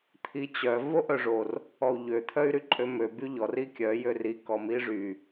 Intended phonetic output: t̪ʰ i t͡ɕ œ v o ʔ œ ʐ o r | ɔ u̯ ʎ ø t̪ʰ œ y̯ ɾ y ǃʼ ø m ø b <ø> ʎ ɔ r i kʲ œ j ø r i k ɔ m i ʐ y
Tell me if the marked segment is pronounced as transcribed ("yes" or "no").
no